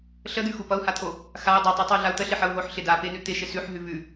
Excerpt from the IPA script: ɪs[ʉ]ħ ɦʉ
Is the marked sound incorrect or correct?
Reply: correct